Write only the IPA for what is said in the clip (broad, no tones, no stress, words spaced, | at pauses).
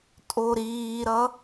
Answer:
tʼoɾiːɾʌ